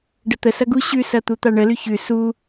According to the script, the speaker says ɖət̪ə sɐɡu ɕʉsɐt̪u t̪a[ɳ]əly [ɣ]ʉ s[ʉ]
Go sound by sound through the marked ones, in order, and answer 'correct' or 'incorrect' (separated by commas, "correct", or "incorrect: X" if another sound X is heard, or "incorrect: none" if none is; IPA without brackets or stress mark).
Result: correct, incorrect: ç, incorrect: u